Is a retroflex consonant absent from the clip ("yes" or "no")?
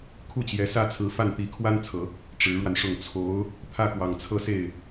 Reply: no